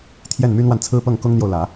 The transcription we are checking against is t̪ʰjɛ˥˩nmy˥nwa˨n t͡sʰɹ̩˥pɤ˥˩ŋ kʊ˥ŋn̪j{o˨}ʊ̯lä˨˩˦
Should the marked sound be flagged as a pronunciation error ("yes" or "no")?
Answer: no